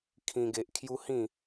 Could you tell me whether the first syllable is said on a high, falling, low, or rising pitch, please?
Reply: high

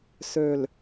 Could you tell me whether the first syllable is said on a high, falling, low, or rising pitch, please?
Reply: low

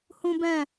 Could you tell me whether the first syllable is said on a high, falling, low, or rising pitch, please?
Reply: high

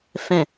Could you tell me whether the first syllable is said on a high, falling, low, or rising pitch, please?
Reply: low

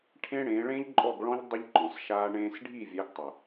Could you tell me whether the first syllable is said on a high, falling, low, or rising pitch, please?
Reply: high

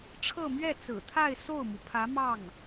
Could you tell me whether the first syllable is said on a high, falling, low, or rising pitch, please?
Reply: falling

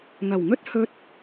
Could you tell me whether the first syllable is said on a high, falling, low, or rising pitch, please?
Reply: low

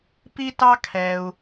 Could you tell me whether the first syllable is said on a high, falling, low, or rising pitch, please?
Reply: high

